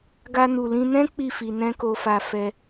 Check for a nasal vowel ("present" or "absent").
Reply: present